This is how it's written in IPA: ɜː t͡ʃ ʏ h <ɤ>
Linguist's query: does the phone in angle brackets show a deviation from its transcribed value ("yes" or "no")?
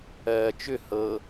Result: no